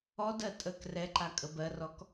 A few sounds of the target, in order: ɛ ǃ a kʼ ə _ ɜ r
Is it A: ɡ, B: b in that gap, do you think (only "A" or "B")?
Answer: B